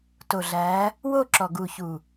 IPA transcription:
to˨ɮæ˨˦ | wo˦˨ǁɔ˨ɡu˨çu˨

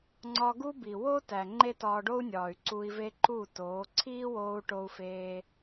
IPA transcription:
ŋ͡ǀɒ˧ɡu˦bi˨ wo˦tæ˨ ŋ͡ǃe˦tɒː˧ɖo˦u̯nʲɒː˨y̯ ǀu˧i̯ve˦ǃuː˦˨toː˨˦ ǀʰiː˦woː˧u̯ ʈo˧u̯feː˧

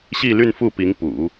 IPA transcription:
ɕi˥˧ly˥˧nfu˥˩pi˧˥ŋ pṵ˨˩˦

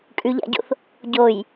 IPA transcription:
kʼʉʎa̰ɟo̰θ | ɟoj

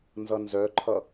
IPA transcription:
nzʌnzœǃʰʌ

